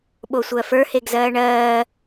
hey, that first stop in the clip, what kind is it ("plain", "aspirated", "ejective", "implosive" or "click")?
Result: implosive